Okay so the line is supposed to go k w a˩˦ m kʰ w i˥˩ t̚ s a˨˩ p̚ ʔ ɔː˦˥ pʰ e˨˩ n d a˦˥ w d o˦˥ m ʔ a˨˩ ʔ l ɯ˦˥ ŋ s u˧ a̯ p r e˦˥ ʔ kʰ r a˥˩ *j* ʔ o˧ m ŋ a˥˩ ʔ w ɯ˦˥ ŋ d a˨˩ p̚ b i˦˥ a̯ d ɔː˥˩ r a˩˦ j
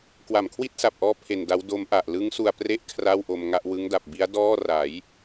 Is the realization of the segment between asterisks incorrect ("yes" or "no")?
yes